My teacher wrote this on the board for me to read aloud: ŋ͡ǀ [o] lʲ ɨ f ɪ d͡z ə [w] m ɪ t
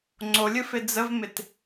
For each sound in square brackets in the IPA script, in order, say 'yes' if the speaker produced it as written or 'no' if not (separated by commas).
yes, no